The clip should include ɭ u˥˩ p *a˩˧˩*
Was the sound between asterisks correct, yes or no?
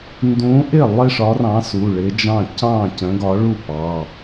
no